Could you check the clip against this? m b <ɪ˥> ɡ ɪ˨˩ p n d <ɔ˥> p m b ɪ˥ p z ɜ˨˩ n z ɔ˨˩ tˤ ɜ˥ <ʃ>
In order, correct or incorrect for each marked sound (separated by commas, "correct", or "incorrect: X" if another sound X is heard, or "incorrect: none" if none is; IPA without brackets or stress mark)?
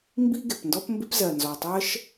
incorrect: i˥, correct, correct